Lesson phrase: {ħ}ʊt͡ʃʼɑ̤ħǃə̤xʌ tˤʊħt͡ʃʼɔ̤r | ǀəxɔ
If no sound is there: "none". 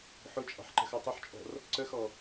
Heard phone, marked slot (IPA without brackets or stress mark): ħ